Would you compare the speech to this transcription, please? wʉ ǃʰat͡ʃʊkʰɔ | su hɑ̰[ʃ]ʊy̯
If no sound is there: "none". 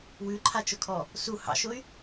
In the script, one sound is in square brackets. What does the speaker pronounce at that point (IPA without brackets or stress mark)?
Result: ʃ